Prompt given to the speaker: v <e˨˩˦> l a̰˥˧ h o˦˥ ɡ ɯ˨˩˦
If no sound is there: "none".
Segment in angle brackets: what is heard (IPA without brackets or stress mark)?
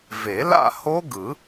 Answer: e˨˩˦